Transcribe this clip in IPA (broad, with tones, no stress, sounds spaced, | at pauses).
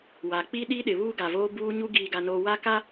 w a˨ k͡p i˦ ɗ i˦ ɗ ɪ˨ β uː˦ ɡ a˨ v oː˦ b uː˦ ɲ u˦ ɡ iː˨ ɡ a˨ n oː˨ w a˦ k a˦